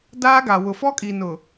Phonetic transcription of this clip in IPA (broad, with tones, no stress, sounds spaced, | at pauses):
d aː˦ ɡ a˨ w ʊ˨ f ɔ˦ kʼ i˨ n ʊ˨